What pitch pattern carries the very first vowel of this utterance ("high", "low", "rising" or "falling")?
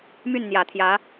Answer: falling